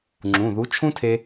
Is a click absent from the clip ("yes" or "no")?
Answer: no